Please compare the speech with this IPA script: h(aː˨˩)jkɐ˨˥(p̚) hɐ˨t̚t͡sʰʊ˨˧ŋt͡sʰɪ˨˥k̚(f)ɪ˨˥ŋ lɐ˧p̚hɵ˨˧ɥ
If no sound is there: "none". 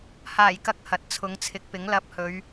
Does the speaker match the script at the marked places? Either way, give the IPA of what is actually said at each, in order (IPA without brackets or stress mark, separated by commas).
aː˨˩, k̚, p